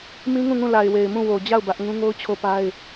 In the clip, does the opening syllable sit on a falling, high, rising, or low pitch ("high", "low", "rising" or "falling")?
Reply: high